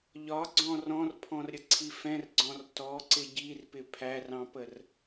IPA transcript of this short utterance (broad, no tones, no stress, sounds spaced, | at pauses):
ʎ ɒ ɡ͡ǀ ɔ̃ r ɔ̃ r pʰ ɔ̃ r ɾʲ ə ǀʰ i f ɛ̃ r ɡ͡ǀ ɔ̃ r t ɔ ǀ ɪ ɟ i r p ɪ pʰ æ r ɑ̃ p ə r